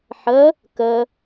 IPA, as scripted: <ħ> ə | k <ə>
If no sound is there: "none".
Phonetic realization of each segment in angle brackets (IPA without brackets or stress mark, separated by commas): ħ, ə